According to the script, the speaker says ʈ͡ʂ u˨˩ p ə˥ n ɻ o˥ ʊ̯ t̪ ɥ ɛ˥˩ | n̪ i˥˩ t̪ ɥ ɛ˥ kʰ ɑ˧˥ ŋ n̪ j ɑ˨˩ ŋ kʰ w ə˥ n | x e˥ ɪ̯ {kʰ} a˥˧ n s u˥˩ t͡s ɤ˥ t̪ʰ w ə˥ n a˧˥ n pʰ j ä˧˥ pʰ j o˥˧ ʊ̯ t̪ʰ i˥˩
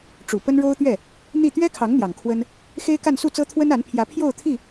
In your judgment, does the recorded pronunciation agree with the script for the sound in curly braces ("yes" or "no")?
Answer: no